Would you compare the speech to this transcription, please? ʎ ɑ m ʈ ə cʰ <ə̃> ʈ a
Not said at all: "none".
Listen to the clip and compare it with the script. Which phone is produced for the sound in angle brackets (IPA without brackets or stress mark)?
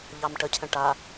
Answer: ə̃